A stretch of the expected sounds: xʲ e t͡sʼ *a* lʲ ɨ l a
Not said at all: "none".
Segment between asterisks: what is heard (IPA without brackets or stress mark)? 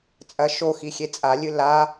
a